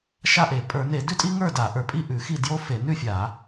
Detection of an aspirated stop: absent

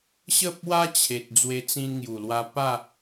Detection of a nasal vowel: present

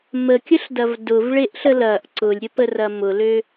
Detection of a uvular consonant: absent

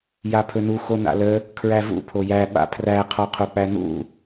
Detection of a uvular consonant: present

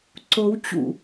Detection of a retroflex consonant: absent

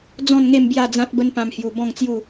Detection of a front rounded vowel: absent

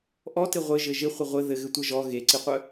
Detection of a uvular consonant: present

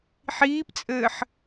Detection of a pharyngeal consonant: present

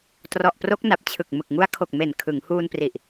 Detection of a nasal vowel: absent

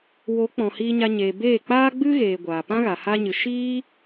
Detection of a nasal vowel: present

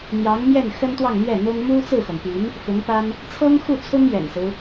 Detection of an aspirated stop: present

